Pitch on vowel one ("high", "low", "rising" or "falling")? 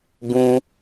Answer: high